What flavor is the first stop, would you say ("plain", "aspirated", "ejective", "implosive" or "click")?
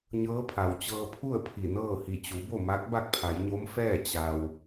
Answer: aspirated